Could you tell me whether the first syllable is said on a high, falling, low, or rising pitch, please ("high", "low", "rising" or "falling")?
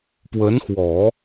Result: rising